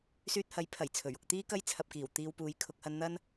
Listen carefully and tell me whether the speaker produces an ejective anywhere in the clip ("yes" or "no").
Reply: no